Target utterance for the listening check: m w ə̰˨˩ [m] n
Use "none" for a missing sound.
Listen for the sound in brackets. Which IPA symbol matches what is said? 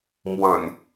none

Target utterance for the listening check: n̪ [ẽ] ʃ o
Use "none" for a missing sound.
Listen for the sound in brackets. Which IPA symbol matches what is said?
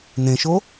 ẽ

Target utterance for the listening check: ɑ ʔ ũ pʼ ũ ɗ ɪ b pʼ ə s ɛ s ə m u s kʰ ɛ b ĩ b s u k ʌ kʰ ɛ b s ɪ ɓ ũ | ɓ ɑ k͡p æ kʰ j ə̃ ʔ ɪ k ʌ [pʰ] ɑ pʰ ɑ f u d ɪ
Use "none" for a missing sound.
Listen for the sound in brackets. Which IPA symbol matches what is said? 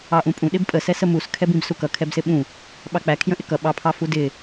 ɓ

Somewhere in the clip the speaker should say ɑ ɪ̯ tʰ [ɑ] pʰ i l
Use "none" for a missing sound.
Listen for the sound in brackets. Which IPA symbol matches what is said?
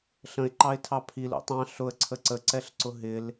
ɑ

